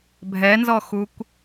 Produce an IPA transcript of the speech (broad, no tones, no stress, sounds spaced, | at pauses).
bʱ ɛ n z ɔ x u kʷ